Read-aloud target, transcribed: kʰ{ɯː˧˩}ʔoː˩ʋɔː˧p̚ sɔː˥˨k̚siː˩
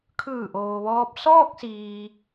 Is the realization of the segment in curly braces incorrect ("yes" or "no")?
no